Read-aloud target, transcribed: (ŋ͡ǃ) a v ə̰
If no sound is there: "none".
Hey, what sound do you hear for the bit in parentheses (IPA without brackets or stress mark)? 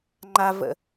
ŋ͡ǃ